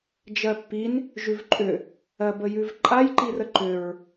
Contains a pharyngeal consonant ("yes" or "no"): no